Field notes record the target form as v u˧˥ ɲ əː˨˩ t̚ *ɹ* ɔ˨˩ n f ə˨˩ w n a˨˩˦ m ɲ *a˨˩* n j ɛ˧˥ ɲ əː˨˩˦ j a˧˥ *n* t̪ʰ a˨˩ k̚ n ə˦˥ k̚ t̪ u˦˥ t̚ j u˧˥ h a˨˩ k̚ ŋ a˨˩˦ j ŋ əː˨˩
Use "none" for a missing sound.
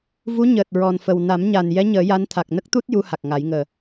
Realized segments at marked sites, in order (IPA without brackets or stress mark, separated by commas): ɹ, a˨˩, n